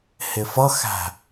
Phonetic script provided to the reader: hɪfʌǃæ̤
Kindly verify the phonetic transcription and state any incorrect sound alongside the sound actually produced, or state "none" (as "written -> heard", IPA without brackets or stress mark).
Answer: ǃ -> x